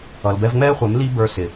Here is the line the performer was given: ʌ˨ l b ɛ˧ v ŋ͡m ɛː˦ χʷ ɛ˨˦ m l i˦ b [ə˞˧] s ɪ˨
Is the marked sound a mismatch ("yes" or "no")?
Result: no